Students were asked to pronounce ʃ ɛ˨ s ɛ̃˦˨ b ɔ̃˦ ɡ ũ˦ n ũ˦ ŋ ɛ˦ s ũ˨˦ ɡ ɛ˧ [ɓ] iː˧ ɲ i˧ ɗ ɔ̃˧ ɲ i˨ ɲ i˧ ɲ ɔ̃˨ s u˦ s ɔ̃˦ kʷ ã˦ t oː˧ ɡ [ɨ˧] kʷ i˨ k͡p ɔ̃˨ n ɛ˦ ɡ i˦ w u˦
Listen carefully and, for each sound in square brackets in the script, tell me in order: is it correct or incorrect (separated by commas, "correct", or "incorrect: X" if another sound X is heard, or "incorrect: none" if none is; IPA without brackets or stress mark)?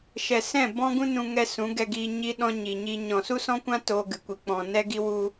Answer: incorrect: ɡ, incorrect: ɨ˨